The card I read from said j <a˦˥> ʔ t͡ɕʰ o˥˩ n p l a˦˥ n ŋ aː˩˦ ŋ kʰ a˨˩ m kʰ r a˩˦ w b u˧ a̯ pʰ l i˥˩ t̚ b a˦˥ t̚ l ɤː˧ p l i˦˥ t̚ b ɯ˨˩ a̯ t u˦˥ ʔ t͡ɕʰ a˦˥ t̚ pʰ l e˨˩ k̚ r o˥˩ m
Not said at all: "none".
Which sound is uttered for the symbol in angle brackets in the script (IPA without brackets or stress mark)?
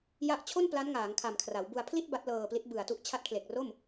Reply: a˦˥